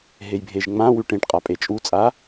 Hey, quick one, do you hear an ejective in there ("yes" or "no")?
yes